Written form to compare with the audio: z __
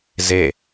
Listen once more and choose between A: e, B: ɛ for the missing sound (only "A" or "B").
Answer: A